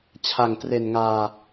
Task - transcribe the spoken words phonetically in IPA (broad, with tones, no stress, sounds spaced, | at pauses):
t͡ɕʰ a˨˩ ŋ t r e˨˩ n ŋ aː˧